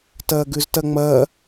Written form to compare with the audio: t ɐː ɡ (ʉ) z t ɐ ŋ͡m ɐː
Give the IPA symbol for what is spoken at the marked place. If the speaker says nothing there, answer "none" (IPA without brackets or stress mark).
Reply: ʉ